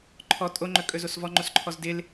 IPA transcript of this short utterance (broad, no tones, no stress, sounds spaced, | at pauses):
ǃʰ ɔ tʼ o ŋ͡ǃ ɵ kʼ ɵ z o s v ɔ ŋ͡ǃ o s ǃʰ ɔ z d ɪ l